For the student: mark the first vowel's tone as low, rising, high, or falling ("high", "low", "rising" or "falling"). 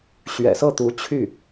low